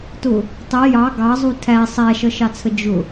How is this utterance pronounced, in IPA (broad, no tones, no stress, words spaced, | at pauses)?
tʊ | tˤi jɑ ɡɑzˤu tʰæ sˤæʃʌʃɑt͡sʰə d͡ʒʊ